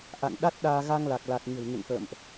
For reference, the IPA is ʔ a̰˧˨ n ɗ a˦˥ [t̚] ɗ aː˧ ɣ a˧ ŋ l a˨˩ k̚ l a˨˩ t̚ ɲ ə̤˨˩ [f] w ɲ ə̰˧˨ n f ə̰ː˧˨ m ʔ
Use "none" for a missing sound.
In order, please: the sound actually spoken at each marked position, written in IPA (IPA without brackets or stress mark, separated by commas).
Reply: t̚, none